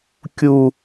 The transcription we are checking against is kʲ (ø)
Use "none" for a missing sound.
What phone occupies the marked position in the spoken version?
u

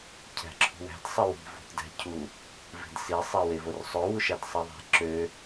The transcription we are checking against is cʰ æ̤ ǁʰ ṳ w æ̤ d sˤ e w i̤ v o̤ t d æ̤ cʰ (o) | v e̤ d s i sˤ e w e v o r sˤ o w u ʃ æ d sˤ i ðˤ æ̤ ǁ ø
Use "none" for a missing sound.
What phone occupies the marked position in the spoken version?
u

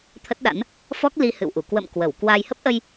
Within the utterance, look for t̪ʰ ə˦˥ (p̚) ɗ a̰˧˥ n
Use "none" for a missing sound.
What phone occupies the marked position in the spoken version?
t̚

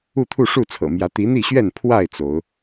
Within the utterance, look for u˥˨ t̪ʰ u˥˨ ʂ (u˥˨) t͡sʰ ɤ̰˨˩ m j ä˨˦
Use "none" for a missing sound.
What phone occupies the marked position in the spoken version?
u˥˨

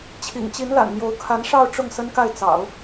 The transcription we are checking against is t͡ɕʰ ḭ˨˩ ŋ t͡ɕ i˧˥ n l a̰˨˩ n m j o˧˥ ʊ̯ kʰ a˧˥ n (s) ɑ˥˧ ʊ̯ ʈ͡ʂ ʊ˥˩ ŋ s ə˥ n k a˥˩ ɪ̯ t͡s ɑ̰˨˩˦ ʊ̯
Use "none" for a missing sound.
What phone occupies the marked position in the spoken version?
ʂ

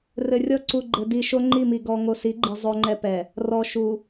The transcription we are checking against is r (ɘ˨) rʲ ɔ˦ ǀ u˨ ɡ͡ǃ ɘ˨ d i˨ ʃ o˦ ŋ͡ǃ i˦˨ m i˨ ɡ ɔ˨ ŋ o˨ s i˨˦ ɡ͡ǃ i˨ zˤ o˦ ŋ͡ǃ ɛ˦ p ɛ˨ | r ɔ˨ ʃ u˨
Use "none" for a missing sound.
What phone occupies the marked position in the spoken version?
ɘ˨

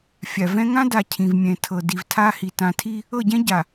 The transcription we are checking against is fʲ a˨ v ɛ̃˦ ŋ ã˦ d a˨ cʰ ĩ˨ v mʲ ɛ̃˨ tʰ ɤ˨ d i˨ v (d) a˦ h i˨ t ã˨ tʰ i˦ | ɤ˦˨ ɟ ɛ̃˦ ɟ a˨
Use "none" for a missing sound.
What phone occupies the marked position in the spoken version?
tʰ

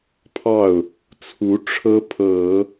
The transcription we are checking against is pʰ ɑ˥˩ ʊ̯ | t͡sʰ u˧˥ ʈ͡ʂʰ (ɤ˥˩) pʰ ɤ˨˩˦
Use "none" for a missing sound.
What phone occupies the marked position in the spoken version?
ɤ˥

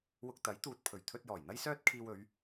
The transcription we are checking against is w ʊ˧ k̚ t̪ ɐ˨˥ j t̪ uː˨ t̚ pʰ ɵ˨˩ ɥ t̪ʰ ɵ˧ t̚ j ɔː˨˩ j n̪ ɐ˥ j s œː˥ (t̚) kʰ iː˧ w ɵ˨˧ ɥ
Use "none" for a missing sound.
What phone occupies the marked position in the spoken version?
t̚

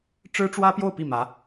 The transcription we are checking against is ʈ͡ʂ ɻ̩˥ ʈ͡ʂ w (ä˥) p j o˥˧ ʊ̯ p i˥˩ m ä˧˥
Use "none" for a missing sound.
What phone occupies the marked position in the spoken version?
ä˥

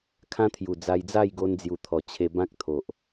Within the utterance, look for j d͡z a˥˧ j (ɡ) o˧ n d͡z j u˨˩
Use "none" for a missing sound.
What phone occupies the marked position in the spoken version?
ɡ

